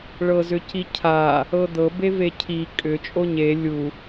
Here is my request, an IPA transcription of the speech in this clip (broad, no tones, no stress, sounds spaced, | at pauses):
ɭ ɤ z ʏ c i cʰ a | ɤ d̪ ɤ b e v e cʰ i kʼ ʏ t͡ʃʼ o ɲ e lʲ u